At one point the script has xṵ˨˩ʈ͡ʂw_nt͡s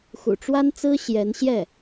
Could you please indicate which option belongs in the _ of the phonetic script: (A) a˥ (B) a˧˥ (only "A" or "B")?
A